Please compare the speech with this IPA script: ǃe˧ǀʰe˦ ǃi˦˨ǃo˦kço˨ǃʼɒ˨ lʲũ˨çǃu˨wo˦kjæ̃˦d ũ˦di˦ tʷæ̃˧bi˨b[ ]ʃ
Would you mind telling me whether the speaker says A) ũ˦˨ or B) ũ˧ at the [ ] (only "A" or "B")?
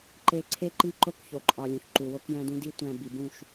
A